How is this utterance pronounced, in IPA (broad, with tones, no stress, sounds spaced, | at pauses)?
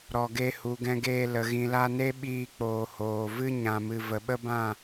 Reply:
ɾ ɔ˨ ɡ e˧ h u˨ ɡ ɛ̃˧ ɡ eː˧ l ə˨ ɣ ĩ˨ l a˧ n e˦ ɓ iː˧ k͡p oː˨ h oː˨ v ɨ˦ ɲ ã˨ m ɨ˨ v ə˨ ɓ ə˦ b ã˦˨